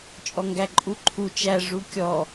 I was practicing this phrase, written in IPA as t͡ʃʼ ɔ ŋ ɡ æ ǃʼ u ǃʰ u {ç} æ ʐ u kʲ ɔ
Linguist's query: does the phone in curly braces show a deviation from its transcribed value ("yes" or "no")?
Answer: yes